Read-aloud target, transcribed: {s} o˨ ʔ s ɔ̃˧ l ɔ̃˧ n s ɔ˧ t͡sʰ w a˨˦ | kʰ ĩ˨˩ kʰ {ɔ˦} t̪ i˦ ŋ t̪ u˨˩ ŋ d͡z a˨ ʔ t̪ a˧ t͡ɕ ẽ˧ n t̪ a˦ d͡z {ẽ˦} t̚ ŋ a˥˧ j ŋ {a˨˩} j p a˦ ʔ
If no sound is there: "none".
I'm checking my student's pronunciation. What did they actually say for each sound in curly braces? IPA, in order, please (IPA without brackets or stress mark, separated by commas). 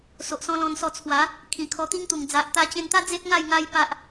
s, ɔ˧, e˦, a˦